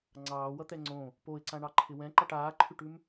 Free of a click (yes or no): no